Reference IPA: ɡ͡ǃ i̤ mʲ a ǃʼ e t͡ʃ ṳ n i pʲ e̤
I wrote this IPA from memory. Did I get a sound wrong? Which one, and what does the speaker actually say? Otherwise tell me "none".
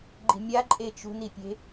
none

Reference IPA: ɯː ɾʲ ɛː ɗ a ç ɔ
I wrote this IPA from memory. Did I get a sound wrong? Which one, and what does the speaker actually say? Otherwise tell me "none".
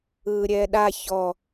none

